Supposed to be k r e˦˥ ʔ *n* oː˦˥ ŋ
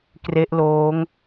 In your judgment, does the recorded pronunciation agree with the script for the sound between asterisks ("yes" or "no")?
no